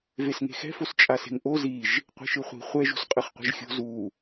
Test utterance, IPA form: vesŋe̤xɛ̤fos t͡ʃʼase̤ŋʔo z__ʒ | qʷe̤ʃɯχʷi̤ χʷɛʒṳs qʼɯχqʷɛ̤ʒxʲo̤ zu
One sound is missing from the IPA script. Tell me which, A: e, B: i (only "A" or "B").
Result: B